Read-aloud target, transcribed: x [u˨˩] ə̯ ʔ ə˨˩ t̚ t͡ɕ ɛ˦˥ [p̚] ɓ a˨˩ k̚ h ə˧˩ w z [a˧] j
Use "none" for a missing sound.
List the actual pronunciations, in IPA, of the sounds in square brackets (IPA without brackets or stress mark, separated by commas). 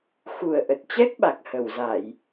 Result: u˨˩, k̚, a˧˩˨